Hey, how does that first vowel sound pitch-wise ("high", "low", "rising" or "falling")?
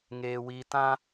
high